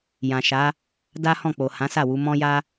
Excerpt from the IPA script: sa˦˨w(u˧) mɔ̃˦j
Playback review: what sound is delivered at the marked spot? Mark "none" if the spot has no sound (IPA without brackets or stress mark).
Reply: u˧